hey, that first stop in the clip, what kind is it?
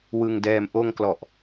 plain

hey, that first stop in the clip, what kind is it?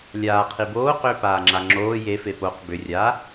aspirated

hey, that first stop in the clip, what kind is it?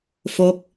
plain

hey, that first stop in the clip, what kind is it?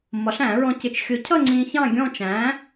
plain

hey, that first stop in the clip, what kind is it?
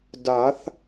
plain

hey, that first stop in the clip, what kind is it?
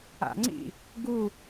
click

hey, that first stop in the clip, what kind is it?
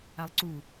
click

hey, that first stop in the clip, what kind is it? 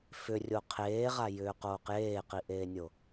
aspirated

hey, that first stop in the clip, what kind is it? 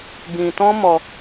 plain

